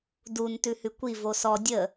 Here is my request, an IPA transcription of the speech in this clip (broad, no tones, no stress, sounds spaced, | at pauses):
d u n t ʉ h ʉ kʷ i v o s ɔ dʲ ə